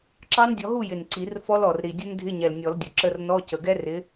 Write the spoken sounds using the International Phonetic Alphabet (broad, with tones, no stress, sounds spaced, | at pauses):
ǁ ɑ˦˥ n dʲ ɔ˨˦ ɦ u˥˨ j ɪ˨˩ n ǀ i˨˩˦ r f ɔ˦˥ l ɔ˨˩ r ɾ i˨˩ dʲ ə˦˥ n dʱ ɪ˧˥˧ ɲ ɛ˨˩ l nʲ ɔ˨˩˦ l dʲ ʊ˨˩ ǁ ə˧˥˧ r n ɔ˧˥˧ c ə˨˩ ɡ ɛ˦˥ r ɪ˨˦